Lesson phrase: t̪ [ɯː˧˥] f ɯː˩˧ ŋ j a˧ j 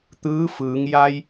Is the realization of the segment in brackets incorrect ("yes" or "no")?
no